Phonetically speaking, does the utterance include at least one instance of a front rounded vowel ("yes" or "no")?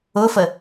no